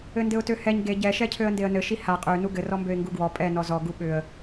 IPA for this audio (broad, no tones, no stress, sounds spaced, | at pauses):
ɘ n d ɘ ʊ̯ t ø h ɛ ɲ ɡ e ɟ ɛ ʃ ɛ cʰ ø ə̯ n d e ə̯ n ɘ ʃ i h a qʼ ø n u ɡ ɘ r ɔ m b ø ɪ̯ ŋ ɡ u ɡ w ɔ pʼ ɛ n ɔ z ɔ ɡ u ɓ ʏ ə̯